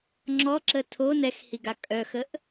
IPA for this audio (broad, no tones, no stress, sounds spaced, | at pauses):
ŋ͡ǁ ɔ ǁ ə tʰ o n ɛ x h i ɡ a kʼ œ x ə ʔ